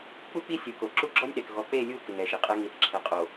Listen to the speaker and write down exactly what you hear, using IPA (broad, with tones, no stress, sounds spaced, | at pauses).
k͡p u˦ k͡p i˦ sʲ u˨ k o˨ ǁ u˦ ɡ͡ǁ ɔ˦ nʲ ɗ ɛ˨ k ɣ ɔ˨˦ k͡p e˦˨ lʲ u˦˨ k ɪ˨ ŋ ɛ˨ ʃ i˨ qʼ ɛ˦ ŋ i˨ θ ǁʰ ɛ˨ qʼ o˨